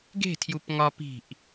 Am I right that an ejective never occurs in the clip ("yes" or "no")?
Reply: yes